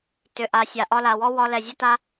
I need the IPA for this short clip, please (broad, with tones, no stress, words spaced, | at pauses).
tʏ˨ʔa˨sʲa˨ ʔɒ˧la˨wɔ˦ wɒ˧lɛ˨zʲə˦ta˦